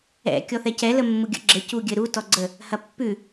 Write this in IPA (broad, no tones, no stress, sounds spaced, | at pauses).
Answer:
ɛ̰ kʲ ɔ θ ɛ c ɛ l ə mː u ɡʲ ə̰ ɡ͡ǁ ɘ c u ɡʲ ɘ ɾ u t ɔ ɡ͡ǀ ə | h ɐ pː ʉ